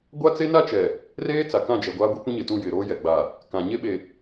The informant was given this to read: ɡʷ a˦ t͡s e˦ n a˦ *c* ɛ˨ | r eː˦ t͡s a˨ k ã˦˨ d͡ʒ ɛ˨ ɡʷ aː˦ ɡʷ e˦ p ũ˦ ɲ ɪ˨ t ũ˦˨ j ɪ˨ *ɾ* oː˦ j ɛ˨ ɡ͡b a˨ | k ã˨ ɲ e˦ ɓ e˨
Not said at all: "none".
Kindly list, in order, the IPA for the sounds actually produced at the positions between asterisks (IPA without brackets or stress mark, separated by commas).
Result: t͡ʃ, ɾ